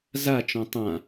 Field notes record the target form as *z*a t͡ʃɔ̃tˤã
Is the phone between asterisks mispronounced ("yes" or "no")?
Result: no